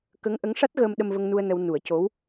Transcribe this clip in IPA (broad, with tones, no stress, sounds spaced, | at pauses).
k ə˧˥ ŋ ʔ ə˧˥ ŋ ʂ a˦˥ t̚ ɣ əː˧ m ɗ ə˧ m v ə˧ ŋ n u˧ ə̯ n ə˧ w n u˨˩˦ ə̯ c o˧˥ w